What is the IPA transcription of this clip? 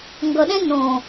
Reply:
ŋ ɡ ʌ ɗ ɛ̃ n õ

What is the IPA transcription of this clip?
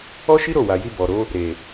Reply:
ɔ˦ ʃ i˦ ɾ o˦˨ w a˨ j i˧ b ɔ˨ ɾ o˨˦ | ɾ e˨

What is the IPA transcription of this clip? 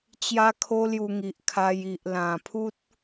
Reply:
t͡ɕ j a˦ kʰ o˦ l j u˧ ŋ i˨ ʔ kʰ a˧ j i˨ ʔ l ã˨˩ pʰ u˦ t̚

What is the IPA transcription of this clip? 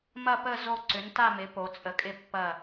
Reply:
m ɐ˥˧ p ə˥˧ z o˥˧ ǀ ʏ˨˥ n t a˥˧ m ɪ˨˥ p o˨˥ t͡sʼ ə˨˥ kʼ ɪ˥˧ pː ɐ˥˧

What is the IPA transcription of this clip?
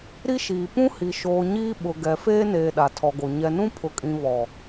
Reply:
ɾ i˦ ʃ iː˨ p ũ˦ h i˨ ʃ oː˨ ɲ iː˦ ɓ ʊ˨ ɡ ɛ˨ f eː˦ n eː˨ ɗ a˨ tʰ ɔ˨ ɡ o˨ ɲ ɛ˨ n ũ˦ pʰ ʊ˨ kʼ ĩ˨ β ɔ˨

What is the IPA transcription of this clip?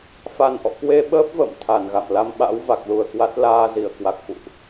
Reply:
f a˨˩ n ʔ ɔ̰˧˨ k w e˧ ɓ əː˦˥ p̚ v ə̰ː˧˨ m t̪ʰ a˧˩ n ɣ a̰˧˨ m l a˧ m ɓ a̰˧˥ w v a˨˩ k̚ l u˨˩ ə̯ k w a˦˥ t̚ l aː˧ z i˧˩ ə̯ k w a˨˩ k̚ f ṵ˧˨ ʔ

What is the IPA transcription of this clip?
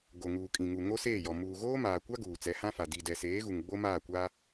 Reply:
ɡ o˨ ŋ uː˨ kʼ ĩ˨ ŋ u˨ ŋ o˦ s eː˦˨ j ɔ˨ m uː˨ ɣ oː˦ m aː˨ kʷ a˦ ɡ uː˨ t͡s ɛ˨˦ h ã˦ f a˨ d i˨ d ɛ˨ s eː˨˦ ɣ u˨ ŋ ɡ͡b o˦ m aː˦˨ kʷ aː˦

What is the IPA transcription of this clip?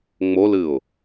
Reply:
ŋ͡m o l ɨ ʊ̯

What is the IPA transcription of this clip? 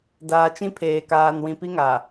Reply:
d aː˨ t͡ʃ ĩ˦ pʰ eː˨ k aː˨ n w ĩ˨ p i˦ ŋ a˨

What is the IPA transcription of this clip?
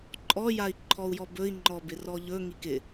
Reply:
ǃʼ ɔ j a i̯ ǃʰ ɔ u̯ j ɔ b ɵ i̯ ŋ͡ǃ ɔ b ɪ r ɔ ʎ ɵ ŋ i k ɪ

